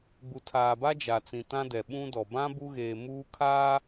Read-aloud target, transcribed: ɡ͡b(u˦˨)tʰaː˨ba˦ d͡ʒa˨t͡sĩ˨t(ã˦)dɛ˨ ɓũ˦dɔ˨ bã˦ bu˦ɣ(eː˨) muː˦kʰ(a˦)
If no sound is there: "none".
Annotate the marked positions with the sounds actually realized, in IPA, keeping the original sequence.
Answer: u˨, ã˦, eː˨, aː˦

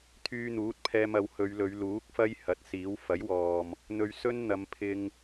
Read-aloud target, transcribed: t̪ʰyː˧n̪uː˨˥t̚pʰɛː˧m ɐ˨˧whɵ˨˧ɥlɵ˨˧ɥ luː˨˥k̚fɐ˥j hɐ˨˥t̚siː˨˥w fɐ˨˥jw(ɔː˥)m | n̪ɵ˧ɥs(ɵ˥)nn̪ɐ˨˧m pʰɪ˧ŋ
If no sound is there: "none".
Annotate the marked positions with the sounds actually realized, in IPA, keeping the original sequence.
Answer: ɔː˨, ɵ˥

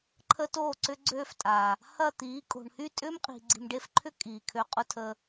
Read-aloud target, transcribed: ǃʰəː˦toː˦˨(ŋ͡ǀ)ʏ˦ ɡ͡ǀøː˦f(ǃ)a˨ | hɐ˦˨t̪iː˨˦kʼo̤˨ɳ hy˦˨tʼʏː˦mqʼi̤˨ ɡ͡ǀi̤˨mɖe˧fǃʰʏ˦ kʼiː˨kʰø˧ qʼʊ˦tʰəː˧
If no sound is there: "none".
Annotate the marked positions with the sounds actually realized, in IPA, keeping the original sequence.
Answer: ǀ, tʼ

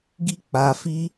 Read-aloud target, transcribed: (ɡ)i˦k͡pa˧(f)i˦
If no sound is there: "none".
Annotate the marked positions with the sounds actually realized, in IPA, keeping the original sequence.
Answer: ɡ, f

